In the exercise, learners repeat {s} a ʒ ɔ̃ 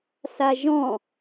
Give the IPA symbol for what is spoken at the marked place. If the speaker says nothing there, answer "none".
s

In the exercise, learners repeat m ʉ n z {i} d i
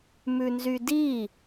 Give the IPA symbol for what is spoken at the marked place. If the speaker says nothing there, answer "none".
y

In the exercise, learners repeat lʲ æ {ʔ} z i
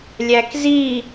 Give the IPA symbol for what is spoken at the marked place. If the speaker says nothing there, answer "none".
k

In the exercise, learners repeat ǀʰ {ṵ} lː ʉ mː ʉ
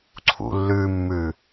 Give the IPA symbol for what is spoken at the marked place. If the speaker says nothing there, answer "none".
ṵ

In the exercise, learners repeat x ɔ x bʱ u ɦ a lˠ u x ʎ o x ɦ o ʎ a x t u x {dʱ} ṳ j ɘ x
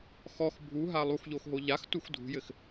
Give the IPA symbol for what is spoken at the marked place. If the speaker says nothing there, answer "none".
dʱ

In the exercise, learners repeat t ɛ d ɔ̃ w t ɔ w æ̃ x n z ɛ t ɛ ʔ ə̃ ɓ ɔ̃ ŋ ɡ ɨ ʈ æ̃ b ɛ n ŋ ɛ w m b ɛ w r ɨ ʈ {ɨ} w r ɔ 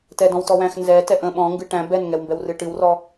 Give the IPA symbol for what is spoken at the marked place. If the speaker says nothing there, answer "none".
ɨ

